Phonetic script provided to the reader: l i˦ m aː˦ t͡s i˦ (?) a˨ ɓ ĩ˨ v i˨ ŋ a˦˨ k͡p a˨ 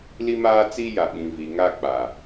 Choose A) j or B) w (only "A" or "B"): A